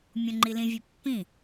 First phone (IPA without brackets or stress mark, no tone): mʲ